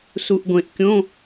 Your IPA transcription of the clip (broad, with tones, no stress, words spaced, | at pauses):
su˨ʔɡʷẽ˨ʔ kʲõ˧˥˧